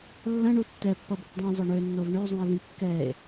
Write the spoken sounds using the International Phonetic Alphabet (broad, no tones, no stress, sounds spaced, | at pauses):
lː ɐ̃ ɳ u tː ɛ pː ʌ b ɐ p dˤ ũ zˤ ʌ ɳ ø nː o v ɳ ø zˤ ũ e̯ ð ĩ kː ɛ e̯